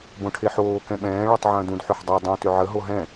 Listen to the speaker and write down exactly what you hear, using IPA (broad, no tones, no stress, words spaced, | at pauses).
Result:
bõʈʰeħoː kɛ̃ɓɛ̃ː ɭɔtˤʕə̃ːdũd ħʏħdˤɛ dˤõ tʏʕə ɦoɦɛ̃